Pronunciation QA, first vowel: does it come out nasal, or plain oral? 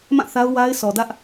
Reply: nasal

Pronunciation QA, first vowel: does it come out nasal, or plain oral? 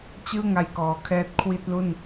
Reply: oral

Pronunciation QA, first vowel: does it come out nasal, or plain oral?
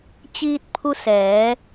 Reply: oral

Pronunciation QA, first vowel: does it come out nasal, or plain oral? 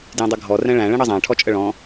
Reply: nasal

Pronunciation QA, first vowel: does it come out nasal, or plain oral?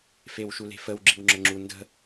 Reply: oral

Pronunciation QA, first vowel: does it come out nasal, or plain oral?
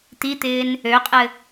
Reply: oral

